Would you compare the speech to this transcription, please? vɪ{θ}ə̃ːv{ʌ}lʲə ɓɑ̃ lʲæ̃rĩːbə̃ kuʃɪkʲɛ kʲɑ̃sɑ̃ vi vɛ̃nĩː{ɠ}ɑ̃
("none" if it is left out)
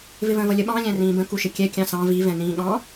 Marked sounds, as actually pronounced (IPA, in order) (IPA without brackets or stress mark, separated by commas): v, ʌ, ɠ